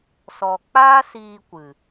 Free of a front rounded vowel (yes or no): yes